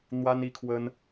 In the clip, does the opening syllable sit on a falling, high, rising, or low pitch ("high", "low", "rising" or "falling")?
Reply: high